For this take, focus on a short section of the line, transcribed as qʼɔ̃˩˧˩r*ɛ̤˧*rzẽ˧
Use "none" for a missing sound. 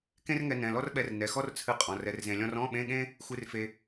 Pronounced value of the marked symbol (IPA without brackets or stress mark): ɛ˧